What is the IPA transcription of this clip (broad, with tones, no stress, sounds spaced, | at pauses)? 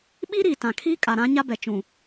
ɓ i˦ ɾ iː˨ t ã˨ kʰ iː˦ kʼ a˨ ɾ ã˦ ɲ a˦ b ɛ˨ t͡ʃ ũ˨